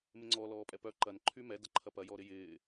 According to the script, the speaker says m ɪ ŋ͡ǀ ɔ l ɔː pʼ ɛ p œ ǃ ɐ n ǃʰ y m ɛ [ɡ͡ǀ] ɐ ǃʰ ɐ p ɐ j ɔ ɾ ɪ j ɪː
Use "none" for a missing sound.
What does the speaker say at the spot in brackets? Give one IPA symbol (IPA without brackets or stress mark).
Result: d